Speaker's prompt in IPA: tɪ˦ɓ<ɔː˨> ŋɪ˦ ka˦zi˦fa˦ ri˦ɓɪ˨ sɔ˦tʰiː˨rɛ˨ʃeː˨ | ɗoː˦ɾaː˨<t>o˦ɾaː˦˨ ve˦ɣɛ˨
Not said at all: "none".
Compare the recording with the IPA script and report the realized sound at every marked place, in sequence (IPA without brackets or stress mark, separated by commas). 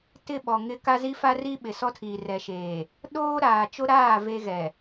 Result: ɔ˨, t͡ʃ